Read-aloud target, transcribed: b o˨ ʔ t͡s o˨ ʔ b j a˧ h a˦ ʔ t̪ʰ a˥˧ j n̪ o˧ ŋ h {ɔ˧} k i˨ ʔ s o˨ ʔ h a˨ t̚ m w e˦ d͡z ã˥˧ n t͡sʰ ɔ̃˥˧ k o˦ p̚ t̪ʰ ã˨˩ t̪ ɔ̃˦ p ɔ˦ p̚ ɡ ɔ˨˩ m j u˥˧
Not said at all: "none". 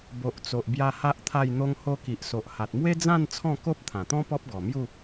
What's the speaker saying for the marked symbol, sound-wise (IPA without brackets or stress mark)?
o˧